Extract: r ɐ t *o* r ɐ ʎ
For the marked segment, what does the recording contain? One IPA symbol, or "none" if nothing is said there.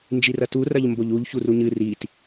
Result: u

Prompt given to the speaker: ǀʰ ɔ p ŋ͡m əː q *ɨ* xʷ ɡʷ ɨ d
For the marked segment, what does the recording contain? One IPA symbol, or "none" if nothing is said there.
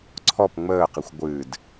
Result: i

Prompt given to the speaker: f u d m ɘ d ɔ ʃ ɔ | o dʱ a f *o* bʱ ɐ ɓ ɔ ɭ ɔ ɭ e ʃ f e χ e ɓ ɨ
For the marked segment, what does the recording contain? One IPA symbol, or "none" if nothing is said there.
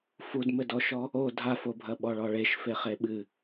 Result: o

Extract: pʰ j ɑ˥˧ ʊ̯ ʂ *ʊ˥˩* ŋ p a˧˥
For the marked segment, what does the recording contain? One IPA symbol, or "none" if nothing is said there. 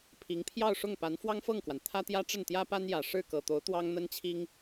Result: ʊ˥˩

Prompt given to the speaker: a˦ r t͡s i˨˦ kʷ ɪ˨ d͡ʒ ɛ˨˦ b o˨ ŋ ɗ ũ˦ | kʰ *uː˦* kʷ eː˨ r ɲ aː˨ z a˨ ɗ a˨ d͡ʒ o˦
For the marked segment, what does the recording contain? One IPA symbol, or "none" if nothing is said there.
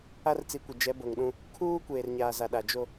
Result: uː˦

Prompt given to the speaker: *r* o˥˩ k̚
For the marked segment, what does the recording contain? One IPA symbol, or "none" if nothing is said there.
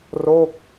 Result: r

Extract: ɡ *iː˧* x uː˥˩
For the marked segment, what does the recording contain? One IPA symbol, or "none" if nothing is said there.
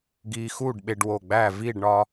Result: iː˧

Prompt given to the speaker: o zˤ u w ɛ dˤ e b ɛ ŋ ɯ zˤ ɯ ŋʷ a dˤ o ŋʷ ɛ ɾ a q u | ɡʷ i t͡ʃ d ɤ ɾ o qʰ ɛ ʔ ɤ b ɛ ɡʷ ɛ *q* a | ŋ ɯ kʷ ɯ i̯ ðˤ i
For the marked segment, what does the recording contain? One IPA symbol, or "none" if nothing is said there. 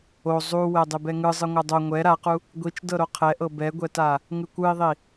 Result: t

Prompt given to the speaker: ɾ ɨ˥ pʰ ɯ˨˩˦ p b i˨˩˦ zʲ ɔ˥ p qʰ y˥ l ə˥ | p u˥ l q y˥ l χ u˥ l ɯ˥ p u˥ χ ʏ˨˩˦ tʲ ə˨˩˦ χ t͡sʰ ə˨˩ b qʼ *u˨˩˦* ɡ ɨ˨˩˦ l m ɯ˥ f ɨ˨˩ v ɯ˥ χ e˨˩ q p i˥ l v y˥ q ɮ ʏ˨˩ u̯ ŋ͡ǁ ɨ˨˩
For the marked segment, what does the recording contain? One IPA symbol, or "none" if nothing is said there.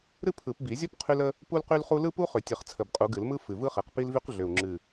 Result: u˨˩˦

